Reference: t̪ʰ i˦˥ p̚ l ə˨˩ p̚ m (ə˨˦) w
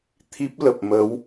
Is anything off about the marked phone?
no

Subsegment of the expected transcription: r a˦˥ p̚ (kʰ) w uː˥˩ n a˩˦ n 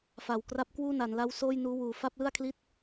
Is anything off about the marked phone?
yes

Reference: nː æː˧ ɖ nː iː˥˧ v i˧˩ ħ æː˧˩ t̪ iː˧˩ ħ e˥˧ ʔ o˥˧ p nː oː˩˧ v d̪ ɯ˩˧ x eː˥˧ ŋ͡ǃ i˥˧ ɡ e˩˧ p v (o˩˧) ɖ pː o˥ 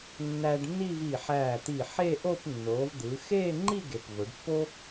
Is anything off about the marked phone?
no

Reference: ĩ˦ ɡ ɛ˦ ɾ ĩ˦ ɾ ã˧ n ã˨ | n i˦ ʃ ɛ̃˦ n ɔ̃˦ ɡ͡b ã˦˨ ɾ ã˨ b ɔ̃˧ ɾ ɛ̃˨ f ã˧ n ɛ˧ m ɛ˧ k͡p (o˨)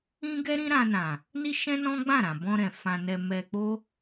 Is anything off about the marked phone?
yes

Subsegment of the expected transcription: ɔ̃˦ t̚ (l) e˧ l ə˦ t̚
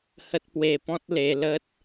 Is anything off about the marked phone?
no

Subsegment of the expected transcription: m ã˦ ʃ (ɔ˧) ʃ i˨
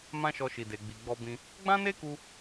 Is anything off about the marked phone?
no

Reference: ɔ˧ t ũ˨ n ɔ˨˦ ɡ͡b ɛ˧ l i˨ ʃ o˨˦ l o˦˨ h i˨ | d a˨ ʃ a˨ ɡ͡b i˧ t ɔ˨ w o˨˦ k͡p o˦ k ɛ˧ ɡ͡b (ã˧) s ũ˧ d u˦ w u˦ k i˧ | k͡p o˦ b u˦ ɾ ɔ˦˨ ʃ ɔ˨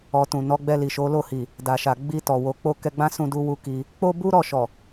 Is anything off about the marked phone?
yes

